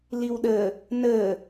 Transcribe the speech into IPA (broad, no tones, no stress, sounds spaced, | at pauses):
l i w ɗ ə | n ə